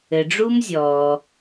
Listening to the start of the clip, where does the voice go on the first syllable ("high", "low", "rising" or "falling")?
low